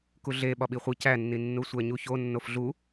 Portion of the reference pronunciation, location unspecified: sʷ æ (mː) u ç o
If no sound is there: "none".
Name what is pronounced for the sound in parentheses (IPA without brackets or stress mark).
ɲ